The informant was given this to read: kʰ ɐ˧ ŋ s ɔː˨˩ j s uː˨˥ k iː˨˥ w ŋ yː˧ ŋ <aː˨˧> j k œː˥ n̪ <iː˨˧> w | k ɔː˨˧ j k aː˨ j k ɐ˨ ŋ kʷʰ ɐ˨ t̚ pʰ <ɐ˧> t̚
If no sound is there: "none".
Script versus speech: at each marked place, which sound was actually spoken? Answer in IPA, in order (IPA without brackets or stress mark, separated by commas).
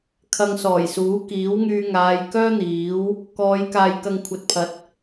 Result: aː˨˧, iː˨˥, ɐ˨˥